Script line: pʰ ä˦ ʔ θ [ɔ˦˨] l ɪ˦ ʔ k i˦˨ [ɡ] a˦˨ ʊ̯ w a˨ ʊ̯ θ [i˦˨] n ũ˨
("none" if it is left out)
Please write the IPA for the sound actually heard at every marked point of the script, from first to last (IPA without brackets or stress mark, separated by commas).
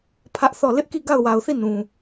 ɔ˦˨, ɡ, i˦˨